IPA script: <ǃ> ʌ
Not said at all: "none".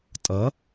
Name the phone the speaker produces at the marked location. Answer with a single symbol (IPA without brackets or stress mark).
tʼ